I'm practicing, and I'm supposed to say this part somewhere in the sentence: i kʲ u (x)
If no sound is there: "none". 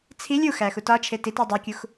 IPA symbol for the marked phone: x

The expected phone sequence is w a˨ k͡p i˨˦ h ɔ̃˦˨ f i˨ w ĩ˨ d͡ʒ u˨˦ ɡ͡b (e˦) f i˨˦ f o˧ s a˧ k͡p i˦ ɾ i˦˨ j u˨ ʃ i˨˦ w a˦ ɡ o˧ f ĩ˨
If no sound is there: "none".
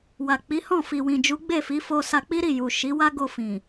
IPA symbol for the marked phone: e˦˨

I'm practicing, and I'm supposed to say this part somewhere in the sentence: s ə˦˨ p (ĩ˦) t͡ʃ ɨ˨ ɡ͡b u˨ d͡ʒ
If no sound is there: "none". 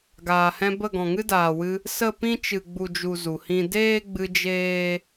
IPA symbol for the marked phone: ĩ˦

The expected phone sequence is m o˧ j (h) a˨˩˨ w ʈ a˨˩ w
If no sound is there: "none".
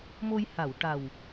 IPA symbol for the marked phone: h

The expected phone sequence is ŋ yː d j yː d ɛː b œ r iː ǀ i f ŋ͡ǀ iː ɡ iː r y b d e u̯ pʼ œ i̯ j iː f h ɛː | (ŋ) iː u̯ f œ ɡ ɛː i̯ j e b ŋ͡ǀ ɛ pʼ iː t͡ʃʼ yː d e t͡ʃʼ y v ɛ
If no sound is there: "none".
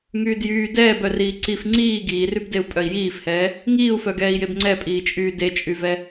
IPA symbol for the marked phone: ŋ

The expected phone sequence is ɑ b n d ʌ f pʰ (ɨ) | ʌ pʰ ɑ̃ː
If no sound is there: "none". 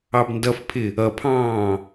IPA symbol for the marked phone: ɪ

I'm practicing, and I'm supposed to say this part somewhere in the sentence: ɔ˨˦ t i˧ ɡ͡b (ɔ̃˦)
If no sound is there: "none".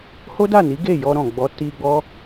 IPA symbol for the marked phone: ɔ˦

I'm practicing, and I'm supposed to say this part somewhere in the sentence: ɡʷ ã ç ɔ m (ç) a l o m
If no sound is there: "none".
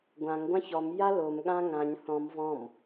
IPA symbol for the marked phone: j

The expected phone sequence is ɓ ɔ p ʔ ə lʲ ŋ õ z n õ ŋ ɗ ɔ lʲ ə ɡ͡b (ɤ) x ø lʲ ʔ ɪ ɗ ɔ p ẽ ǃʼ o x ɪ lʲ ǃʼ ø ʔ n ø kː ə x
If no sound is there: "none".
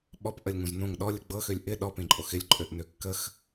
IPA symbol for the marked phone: ɤ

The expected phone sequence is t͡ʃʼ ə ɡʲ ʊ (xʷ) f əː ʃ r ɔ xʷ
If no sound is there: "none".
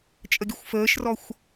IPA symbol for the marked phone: xʷ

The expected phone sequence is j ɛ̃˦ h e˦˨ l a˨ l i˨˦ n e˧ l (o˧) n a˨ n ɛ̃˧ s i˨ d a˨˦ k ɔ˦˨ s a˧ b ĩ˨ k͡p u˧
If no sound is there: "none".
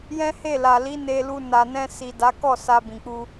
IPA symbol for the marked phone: u˧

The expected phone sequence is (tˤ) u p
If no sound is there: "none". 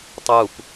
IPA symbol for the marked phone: tˤ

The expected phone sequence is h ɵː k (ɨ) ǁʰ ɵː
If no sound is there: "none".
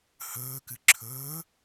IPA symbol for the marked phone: ɨ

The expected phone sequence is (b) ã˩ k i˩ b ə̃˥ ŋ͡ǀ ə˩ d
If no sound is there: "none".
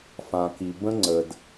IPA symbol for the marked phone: f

